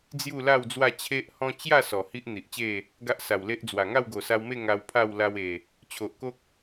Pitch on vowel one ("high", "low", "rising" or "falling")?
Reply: falling